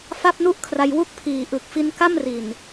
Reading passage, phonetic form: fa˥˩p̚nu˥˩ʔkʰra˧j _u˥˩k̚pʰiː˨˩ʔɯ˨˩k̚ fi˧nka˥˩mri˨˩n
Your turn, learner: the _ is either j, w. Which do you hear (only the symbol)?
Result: w